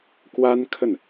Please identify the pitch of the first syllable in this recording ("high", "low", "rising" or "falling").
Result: high